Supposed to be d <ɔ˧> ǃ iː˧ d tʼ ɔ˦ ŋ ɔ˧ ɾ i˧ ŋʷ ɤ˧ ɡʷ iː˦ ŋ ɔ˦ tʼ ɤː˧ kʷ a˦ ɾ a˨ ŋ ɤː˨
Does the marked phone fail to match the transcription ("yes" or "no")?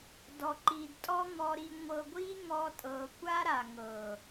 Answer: no